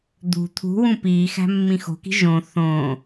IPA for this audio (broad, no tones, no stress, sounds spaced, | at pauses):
d̪ ṳ t̪ʰ ṳ w ũ p iː x æ̤ mː ĩ x o̤ k i̤ ʒ õ θ õ